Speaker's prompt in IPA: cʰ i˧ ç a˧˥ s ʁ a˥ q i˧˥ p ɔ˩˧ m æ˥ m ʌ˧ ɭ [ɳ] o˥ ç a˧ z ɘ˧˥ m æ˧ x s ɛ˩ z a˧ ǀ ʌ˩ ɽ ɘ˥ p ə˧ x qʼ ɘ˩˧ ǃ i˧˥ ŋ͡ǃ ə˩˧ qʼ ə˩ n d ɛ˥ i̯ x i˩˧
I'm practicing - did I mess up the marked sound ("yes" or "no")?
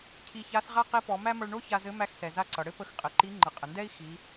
no